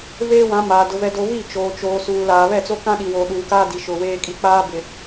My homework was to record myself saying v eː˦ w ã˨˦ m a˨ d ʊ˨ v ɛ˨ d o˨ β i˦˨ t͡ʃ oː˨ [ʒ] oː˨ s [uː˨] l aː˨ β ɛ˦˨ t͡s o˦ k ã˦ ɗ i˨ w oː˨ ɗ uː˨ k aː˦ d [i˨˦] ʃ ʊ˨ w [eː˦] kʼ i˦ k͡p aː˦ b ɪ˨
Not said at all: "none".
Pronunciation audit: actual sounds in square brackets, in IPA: t͡ʃ, uː˨, i˨, eː˦

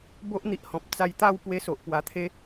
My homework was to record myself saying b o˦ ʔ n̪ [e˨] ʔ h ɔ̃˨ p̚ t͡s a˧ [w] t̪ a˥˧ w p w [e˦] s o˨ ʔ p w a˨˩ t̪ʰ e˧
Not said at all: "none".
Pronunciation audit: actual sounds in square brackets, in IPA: i˨, j, e˧

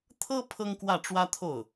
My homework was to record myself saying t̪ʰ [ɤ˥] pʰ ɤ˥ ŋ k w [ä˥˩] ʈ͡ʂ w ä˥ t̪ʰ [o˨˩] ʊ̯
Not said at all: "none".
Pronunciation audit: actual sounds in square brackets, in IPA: ɤ˥, ä˥˩, o˥˩

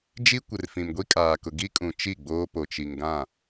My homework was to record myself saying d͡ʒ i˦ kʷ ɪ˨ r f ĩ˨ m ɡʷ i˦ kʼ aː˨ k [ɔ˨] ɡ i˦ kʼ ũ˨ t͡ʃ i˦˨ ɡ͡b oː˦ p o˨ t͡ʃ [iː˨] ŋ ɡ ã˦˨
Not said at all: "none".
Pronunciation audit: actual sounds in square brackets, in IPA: ʊ˨, i˨

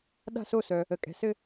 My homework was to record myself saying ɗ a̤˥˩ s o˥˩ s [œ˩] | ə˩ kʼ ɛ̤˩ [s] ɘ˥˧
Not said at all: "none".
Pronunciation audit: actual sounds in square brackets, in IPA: œ˩, s

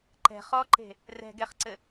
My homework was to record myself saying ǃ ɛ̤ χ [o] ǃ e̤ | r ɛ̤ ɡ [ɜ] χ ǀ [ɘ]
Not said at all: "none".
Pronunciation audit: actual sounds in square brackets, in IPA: ɔ, ɛ, ɘ

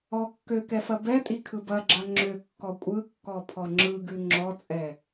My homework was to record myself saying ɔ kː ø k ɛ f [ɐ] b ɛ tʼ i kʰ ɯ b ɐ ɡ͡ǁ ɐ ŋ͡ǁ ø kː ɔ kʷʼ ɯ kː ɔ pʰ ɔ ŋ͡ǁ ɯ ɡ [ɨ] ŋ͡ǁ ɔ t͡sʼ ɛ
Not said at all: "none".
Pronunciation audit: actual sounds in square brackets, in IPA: ɐ, ʉ

